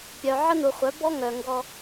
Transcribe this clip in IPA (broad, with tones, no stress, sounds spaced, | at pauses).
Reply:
pʲ œ˨ ʕ ə˦ n u˨ χʷ œ˨˦ b ɔ˦ ŋ œ˨ ŋ ɡ ɔ˧